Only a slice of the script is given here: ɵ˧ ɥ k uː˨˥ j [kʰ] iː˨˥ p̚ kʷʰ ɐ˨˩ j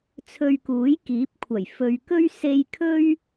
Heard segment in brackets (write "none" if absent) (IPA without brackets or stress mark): k